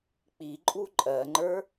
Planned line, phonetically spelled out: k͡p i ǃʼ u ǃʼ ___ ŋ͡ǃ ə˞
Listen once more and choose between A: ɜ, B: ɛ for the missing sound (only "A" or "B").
A